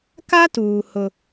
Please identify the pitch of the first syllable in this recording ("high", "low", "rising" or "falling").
high